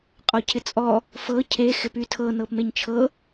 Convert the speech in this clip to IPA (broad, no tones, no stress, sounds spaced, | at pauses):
qʼ ɔ cʰ ɪ t͡sʼ ɔ | f ɤ cʰ e x ɪ p y tʰ ɤ n ɤ p m e ɲ t͡ʃʰ ɤ